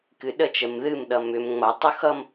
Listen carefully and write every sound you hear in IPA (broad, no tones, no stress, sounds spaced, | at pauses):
k ɨ ɗ ə t͡ʃ ə m ð ɨ m ɗ ʌ m ʏ m ŋ͡m ʌ tˤ ʊ x ʌ m